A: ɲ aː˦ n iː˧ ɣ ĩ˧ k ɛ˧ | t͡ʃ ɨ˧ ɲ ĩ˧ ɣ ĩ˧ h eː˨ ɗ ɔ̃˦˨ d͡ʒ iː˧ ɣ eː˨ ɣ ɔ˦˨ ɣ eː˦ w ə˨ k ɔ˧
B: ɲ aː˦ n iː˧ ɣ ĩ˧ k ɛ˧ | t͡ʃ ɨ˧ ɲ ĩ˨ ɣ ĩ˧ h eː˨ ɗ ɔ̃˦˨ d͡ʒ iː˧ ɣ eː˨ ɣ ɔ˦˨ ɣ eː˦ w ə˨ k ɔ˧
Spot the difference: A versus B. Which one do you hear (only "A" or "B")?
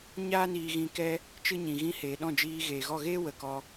B